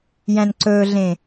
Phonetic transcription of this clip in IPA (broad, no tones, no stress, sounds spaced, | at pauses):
j æ̃ n ǀ ɵː ɮ ẽː